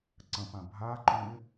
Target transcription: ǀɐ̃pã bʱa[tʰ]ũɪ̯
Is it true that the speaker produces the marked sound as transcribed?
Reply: no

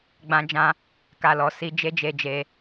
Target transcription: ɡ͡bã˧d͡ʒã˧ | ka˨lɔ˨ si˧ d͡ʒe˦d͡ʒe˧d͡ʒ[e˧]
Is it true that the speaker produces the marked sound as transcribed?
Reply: yes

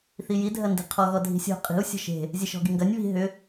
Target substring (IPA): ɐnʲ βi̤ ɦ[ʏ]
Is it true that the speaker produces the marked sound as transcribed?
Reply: yes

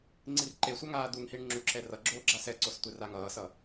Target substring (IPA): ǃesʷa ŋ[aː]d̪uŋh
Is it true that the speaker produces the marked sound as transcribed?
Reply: yes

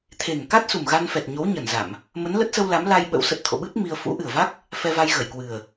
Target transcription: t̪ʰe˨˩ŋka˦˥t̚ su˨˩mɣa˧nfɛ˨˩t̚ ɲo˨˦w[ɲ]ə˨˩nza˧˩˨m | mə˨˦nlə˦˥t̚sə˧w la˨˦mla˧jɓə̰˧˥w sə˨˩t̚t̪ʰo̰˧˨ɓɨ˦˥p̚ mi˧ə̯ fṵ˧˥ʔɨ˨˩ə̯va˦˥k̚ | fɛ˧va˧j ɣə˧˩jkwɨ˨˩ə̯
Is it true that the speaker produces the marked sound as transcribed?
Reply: yes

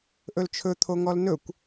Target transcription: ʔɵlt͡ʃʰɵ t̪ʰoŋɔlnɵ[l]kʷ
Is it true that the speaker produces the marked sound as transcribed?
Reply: no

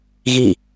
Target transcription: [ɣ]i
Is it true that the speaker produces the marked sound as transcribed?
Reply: yes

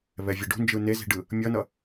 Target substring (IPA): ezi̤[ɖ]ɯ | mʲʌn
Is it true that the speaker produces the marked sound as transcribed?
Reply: yes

